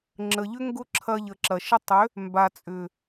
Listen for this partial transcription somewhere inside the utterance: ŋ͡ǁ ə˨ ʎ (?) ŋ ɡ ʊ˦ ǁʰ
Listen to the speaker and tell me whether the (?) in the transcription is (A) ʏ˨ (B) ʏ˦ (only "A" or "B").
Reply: B